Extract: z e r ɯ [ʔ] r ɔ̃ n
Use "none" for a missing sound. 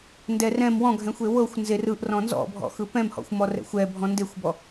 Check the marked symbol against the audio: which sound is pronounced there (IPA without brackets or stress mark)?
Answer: ʔ